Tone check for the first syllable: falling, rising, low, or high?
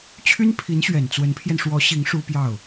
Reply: high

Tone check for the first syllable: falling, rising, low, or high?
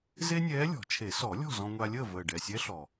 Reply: high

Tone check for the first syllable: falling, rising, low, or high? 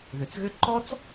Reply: low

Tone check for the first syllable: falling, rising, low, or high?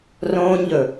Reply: high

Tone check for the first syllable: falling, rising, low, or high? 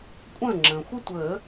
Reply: falling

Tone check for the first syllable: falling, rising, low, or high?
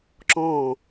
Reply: falling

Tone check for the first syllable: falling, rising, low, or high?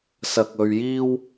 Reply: low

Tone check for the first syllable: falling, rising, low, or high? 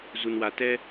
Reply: low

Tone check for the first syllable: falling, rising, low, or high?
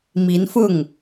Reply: rising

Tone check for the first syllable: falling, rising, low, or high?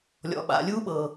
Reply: low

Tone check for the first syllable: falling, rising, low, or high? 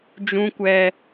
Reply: high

